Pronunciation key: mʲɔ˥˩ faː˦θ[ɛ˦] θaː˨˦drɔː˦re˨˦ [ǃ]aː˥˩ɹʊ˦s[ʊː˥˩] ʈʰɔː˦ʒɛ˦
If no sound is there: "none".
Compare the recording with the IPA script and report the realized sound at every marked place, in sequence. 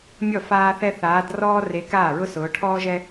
ɛ˦, k, ʊː˨˦

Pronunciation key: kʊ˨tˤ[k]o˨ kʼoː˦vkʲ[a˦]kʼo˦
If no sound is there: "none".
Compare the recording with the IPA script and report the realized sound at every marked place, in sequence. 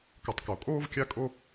k, a˦

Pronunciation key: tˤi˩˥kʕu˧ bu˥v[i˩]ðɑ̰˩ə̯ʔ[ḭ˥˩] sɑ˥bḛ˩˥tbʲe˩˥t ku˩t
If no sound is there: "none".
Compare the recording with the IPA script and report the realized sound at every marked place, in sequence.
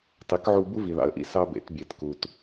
i˩, ḭ˥˩

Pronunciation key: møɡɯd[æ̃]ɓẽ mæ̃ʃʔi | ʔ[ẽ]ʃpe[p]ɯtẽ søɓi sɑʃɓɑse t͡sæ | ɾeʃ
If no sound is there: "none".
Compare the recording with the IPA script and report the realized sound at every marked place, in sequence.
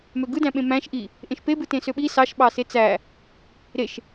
æ̃, ẽ, b

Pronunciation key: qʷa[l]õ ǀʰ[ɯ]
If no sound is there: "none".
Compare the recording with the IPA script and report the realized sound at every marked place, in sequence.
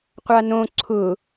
n, ʊ

